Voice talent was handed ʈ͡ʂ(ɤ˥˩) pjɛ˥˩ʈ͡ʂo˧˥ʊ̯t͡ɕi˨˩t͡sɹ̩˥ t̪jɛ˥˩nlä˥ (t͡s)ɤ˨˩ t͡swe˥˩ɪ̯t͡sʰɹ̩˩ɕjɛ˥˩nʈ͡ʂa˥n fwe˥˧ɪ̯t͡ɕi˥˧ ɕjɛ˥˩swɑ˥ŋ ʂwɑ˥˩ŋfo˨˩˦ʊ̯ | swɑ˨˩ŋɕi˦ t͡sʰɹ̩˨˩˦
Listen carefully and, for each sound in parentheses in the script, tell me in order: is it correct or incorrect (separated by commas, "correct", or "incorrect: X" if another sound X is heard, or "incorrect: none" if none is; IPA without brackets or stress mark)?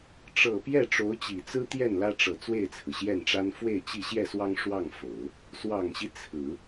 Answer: incorrect: ɤ˨˩, incorrect: ʈ͡ʂ